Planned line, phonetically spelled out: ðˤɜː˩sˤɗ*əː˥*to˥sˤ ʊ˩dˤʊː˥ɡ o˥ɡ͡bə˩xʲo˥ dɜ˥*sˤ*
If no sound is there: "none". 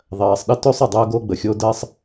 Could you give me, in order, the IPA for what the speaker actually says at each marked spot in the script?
ə˥, sˤ

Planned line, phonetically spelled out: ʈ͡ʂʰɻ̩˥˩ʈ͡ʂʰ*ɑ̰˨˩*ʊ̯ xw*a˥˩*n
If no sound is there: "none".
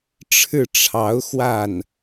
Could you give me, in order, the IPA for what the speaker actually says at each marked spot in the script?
ɑ˧˥, a˥˩

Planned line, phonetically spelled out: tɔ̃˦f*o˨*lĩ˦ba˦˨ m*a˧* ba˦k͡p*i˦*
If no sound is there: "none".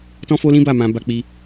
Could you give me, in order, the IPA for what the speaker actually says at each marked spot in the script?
o˦, ã˧, i˦

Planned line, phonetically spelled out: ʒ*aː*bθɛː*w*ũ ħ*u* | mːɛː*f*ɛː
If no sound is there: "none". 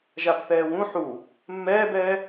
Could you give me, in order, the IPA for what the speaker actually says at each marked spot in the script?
a, w, u, b

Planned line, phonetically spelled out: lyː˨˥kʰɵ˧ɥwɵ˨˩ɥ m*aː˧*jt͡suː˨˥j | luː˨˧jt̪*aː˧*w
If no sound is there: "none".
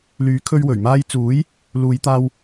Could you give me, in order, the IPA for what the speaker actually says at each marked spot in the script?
aː˧, aː˧

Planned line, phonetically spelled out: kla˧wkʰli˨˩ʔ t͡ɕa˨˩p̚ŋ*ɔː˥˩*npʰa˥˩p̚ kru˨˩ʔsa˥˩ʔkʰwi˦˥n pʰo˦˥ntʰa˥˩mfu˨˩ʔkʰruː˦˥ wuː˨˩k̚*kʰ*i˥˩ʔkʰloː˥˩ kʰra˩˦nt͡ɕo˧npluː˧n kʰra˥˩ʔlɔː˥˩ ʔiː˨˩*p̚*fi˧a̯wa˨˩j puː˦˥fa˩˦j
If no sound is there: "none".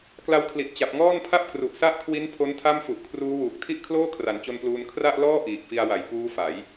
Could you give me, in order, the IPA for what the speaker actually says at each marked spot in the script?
ɔː˥˩, tʰ, k̚

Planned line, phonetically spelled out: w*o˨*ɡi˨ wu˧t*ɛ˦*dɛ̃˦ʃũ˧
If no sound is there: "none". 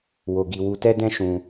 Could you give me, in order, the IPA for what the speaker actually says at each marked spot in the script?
o˨, ɛ˦

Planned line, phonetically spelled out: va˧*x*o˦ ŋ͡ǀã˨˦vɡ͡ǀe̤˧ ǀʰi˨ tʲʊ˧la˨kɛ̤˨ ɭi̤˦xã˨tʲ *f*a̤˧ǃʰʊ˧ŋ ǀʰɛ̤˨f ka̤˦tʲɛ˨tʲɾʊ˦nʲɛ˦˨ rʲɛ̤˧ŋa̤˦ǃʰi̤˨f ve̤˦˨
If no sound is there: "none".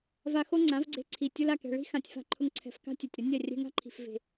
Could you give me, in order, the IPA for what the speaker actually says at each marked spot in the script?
x, f

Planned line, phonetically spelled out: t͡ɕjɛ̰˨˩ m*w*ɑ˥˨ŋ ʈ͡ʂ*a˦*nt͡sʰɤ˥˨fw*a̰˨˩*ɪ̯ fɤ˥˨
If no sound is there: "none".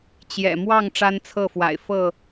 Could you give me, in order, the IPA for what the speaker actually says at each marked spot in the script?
w, a˦, a̰˨˩

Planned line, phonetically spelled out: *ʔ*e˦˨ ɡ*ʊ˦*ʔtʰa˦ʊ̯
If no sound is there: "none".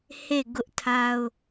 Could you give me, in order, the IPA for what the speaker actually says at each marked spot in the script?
h, ʊ˦

